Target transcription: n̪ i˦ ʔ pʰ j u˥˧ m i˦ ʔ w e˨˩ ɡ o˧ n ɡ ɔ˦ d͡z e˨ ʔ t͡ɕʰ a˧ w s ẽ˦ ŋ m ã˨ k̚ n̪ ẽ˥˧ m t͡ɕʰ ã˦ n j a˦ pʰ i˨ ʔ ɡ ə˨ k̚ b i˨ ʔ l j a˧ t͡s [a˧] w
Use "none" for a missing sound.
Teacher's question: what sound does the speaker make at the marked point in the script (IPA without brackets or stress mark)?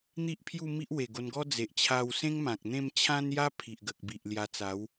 a˨˦